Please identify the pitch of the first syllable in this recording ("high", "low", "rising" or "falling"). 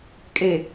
low